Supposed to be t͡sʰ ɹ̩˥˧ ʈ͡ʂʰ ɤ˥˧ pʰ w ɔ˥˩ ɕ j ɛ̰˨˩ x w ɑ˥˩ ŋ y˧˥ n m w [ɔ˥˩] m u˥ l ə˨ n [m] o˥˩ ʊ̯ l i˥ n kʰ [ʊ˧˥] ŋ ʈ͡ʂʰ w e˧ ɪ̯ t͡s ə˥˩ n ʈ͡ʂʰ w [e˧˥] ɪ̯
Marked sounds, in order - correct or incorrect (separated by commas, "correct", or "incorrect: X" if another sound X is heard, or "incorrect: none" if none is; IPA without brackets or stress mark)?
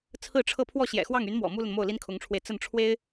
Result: incorrect: ɔ̰˨˩, correct, correct, incorrect: e˥